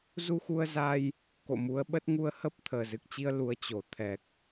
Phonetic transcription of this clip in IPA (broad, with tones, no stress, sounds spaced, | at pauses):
z u˧ x u˧ ə̯ z a˧ j | k o̰˧˨ m u˨˦ ə̯ ɓ ə˦˥ t̚ ŋ u˧ ə̯ h ə˦˥ p̚ t̪ʰ əː˨˩ z ɨ˨˩ k̚ t͡ɕ i˧ ə̯ l u˨˦ ə̯ t͡ɕ o˧˩ t̪ʰ ɛ˨˩ k̚